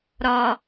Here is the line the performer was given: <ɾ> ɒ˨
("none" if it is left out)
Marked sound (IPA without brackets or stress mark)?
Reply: ɾ